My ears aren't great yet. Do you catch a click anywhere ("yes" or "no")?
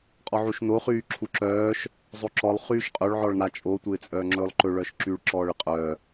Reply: yes